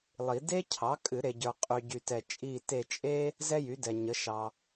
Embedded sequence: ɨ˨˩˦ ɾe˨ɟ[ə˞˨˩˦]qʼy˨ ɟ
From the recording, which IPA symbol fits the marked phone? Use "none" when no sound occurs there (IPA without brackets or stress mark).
ə˞˨